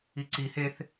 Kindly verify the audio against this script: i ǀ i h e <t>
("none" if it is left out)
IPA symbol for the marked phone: θ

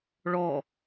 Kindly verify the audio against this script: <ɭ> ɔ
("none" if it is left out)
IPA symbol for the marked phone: ɭ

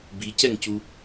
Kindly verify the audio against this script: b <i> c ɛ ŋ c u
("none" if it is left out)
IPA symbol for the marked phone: i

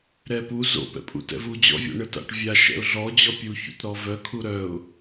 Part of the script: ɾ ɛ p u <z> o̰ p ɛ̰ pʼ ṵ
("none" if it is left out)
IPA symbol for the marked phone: z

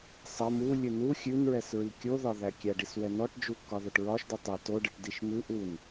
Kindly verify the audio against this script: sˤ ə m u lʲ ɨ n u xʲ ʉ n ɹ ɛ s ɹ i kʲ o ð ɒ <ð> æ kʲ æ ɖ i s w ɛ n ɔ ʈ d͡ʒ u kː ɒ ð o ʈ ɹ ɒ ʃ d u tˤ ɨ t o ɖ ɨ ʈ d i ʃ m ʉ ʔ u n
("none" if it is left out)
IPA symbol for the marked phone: ð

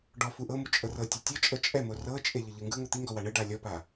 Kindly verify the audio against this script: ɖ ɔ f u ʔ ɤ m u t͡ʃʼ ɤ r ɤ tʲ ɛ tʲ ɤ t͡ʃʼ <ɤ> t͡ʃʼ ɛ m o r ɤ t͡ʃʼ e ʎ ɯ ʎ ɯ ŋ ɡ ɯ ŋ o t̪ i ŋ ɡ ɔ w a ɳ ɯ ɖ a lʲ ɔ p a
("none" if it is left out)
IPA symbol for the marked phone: ɤ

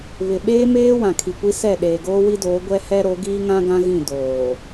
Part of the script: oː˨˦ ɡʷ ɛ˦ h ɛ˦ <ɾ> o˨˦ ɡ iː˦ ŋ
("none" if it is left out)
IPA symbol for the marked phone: ɾ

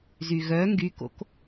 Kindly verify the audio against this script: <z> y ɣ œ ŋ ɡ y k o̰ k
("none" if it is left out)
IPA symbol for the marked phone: z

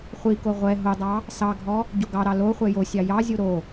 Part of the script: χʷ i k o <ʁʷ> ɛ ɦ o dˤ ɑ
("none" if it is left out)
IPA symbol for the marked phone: ʁʷ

